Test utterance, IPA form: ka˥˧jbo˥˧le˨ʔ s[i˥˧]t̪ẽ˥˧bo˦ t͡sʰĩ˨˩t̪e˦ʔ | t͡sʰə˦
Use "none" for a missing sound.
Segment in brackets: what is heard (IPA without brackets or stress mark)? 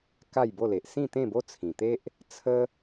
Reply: ĩ˥˧